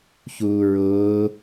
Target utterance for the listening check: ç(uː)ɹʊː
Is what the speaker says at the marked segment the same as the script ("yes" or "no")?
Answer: yes